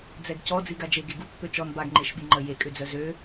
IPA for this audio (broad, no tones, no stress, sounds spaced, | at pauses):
d͡z ɛ ɡ c ɔ d͡z i ɡ a d͡ʒ e ɡ e ɡ u pː ø t͡ʃ ɔ n b a ɡ ŋ͡ǃ e ʃ ɓ i ŋ͡ǃ ə j e kʼ ø d͡z œ z ø